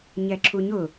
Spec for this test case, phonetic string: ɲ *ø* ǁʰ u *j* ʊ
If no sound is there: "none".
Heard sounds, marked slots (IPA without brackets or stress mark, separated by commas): ɛ, ɲ